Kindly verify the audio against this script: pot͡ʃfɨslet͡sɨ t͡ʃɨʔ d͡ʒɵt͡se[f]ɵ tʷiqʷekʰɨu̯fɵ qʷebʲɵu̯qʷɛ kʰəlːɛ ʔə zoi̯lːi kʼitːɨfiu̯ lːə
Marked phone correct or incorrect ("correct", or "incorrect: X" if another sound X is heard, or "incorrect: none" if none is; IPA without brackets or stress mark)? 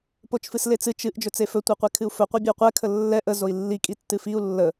correct